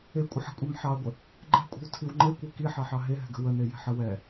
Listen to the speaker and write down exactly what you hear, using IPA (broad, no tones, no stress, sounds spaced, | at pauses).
e kʷʼ ə ħ ə̤ kʷʼ ɛ m ħ ɑ ɐ̯ ɡʷ ə | ɡ͡ǃ ɛ̤ kʷʼ ɛ̤ w tʰ i w ŋ͡ǃ e kʷ e k i ħ ɑ ħ ɑ ɦ e ɦ ɛ̤ ɡ ə̤ w ə n e j ɛ̤ ħ ə w ɛ